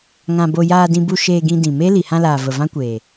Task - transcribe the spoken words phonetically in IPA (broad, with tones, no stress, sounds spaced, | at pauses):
ŋ ã˧ b o˧ j aː˧ d ĩ˧ b u˧ ʃ eː˧ ɡ ĩ˧ d ĩ˨ m e˦ l i˨ h ã˧ l aː˨ v ə˨ v ã˦ kʷ eː˨